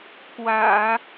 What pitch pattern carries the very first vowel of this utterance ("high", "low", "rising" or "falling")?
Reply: low